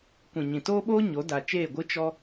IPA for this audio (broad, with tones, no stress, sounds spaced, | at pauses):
kʷ ĩ˨ ɲ ĩ˨ t oː˦ ɓ oː˦ ɲ o˨˦ d a˨ t͡ʃ eː˦˨ ɡʷ ɨ˦ t͡ʃ ɔ˦